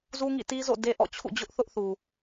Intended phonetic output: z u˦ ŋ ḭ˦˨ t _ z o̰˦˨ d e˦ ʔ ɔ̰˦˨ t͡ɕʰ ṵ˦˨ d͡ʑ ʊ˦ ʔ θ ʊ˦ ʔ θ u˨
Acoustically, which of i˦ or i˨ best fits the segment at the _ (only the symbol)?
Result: i˦